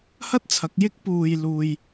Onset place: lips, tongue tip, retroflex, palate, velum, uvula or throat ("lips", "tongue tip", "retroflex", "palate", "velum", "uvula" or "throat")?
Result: throat